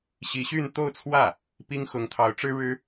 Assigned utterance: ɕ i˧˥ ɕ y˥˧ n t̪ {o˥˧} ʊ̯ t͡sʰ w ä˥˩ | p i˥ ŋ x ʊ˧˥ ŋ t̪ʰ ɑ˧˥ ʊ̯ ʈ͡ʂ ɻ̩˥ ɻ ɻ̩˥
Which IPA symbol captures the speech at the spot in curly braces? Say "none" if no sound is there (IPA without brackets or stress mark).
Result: o˥˧